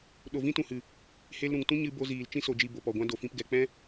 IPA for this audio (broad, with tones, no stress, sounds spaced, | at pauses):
ɗ o˨ v ĩ˦ t ũ˨ h ɨ˨ | h e˧ l ɾ ũ˨ ŋ t ũ˦ ɲ ɨ˧ b o˧ z iː˨ l t͡ʃ ĩ˧ s o˨ d͡ʒ i˨ b o˨ p ɔ˨ ɡʷ ã˦ d o˨ f ĩ˧ p ɡ ɛ˨ k͡p ɛ̃˦